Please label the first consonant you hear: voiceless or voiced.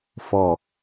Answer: voiceless